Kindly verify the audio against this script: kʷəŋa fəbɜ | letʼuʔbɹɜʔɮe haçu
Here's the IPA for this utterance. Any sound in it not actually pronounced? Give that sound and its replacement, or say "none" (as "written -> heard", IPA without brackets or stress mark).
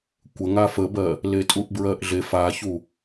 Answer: h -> f